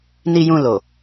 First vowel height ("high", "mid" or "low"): high